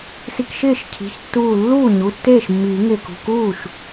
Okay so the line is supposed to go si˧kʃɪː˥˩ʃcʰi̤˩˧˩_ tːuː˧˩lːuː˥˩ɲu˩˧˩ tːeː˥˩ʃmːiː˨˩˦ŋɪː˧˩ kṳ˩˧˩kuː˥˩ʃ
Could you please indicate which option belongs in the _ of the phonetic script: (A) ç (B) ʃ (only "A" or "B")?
A